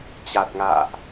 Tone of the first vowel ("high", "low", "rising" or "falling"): low